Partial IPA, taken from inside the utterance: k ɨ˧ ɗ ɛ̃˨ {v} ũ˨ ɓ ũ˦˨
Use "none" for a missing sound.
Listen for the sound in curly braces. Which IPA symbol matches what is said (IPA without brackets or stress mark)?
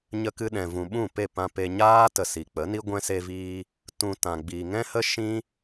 v